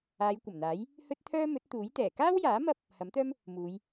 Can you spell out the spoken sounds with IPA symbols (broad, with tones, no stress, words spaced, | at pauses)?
aː˨˧jkʷɐ˨˩mn̪aː˨˥j | hɵ˥t̚t̪ʰœː˥ mɵ˨˥t̚t̪uː˨˥jt̪ɛː˨˩ kaː˥wjaː˨˥ mɐ˥p̚ | hɐ˨˥mt̪œː˥m | muː˨˧j